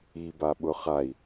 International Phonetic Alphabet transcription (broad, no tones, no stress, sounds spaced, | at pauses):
i b a ɓ ʊ χ a i̯